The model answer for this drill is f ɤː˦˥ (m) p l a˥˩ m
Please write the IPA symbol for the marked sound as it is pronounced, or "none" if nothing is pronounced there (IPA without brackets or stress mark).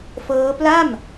none